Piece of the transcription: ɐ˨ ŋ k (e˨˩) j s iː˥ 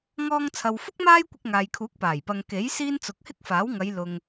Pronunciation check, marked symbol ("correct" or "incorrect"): incorrect